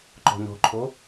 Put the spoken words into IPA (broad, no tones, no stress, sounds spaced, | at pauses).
ǃ ɔ̤ n ɔ̤ ǃʰ o